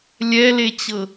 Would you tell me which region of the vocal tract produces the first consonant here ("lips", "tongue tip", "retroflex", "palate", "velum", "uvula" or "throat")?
tongue tip